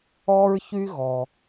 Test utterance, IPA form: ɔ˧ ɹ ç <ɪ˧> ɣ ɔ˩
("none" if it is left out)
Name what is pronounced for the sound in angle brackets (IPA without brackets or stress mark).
y˧